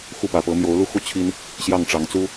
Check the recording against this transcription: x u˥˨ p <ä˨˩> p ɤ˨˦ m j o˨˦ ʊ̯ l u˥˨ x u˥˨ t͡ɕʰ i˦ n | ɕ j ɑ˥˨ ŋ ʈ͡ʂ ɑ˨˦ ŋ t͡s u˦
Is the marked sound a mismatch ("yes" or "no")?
no